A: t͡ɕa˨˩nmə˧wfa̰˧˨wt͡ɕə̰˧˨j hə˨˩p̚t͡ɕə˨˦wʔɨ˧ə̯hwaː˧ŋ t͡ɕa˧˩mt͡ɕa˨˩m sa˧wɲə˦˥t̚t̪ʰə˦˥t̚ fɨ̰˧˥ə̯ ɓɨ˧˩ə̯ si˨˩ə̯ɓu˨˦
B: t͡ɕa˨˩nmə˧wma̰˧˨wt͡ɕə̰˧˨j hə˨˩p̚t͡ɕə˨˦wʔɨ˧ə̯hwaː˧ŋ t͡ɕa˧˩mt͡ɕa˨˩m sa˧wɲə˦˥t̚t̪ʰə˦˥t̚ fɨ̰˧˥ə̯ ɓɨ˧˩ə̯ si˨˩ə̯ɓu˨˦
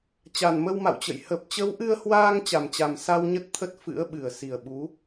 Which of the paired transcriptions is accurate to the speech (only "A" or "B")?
B